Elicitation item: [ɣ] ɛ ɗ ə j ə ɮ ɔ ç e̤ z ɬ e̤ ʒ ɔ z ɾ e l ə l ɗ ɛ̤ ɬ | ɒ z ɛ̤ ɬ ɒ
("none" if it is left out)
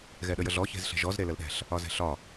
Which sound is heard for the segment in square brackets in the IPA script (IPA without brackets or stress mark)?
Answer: ɣ